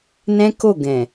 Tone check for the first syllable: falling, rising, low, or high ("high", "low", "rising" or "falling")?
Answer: high